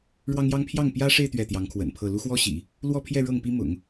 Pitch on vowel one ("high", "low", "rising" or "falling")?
high